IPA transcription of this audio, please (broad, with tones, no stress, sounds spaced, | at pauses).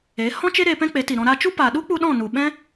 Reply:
e˨˦ h ɔ̃˦ t͡ʃ e˦ ɾ e˧ p ɛ̃˦ k͡p e˨˦ t i˨ ɾ ɔ̃˧ ɾ a˧ t͡ʃ u˦ p a˨ ɗ u˦ k͡p u˧ ɗ ɔ̃˦˨ n u˨ ɓ ɛ̃˦